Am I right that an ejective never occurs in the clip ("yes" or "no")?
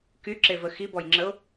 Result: yes